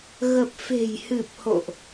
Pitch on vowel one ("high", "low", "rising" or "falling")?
low